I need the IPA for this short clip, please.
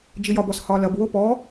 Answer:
d͡ʒijɒbɔs hɒlɐb wopɔ

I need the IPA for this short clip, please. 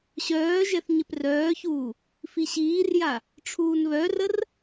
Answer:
ɕœːʒɛθ ɲɪprœːçuː | fiɕiːrja | ʈ͡ʂʰuːnβœrər

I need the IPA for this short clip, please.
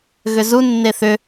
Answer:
ɣʏzu nːeθʏ

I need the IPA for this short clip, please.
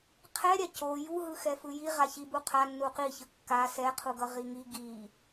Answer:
qʰɛɾʲa co juɦɯxɛfɯ ji ʁaçibu qʰanːu qiçɯ kːa sɛqʰuɡʌ ʁiŋi ɡi

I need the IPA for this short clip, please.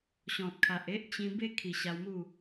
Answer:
ɕɔ̃˨t̚kʰa˨ʔ e˦ʔ t͡ɕĩ˧ be˦kʰi˨˩ ɕa˧wmu˥˧

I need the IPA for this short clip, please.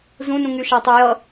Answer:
zũnũŋy ʃatˤɤjʌ

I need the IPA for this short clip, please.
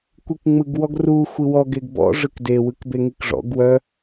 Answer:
kʷikŋ͡mɯɡwɔɡru xʷiwɔ ɡeɡbɔ̰ ʐɯkde wɯkbeŋikʐɔ̰ɡ wœ

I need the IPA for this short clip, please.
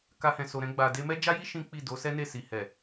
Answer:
ka˧hɛ̃˨so˨ ɾɛ̃˧ɡ͡ba˨ de˧mɛ˦ d͡ʒa˦ji˦ ʃĩ˦k͡pi˦˨ do˨˦sɛ˦ne˦˨si˨ hɛ˨

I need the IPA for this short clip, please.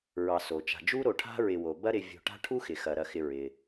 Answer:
ɹɑ˨so˩t͡ʃa̤˨d͡ʒu˥ ɾo˨ʈʰa̤˥ɹɪ˨wo˩ bɐ˦ɾɪ˨vʲo̤˨ ʈa̤˥ʈʰu˥xɪ˩xɐ˩ ɾɐ˨xɪ˨ɹɪ˩

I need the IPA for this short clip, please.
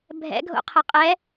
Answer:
bʱɛ̰ɡʱo̰qʰə qʼɛ

